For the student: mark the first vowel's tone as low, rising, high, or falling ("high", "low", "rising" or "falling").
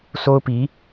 high